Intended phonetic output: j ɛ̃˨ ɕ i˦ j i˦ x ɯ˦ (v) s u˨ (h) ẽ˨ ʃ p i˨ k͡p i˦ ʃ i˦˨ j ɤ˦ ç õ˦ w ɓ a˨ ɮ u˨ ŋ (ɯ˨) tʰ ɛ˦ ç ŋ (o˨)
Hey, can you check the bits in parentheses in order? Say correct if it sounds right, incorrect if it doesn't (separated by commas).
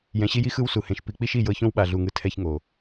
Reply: incorrect, correct, correct, correct